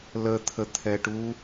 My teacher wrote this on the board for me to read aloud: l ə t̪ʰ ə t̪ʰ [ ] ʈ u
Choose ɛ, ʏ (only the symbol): ɛ